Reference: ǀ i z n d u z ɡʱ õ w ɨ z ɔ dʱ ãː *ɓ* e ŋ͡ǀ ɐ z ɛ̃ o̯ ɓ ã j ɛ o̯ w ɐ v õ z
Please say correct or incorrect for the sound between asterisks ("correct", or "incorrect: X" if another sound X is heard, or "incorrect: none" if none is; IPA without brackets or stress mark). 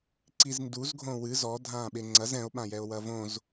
correct